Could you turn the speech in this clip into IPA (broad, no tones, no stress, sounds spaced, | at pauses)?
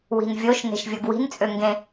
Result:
w i̤ n vʲ o ʃ n e̤ ʃ vʲ o ɡ w i̤ n t͡sʼ ø ŋ ɡ ẽ